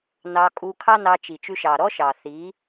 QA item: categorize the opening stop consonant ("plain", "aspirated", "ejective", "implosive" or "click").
ejective